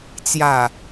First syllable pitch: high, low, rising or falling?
low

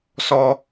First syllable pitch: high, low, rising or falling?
high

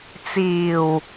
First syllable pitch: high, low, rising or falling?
low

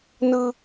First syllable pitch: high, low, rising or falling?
high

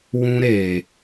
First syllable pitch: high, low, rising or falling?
high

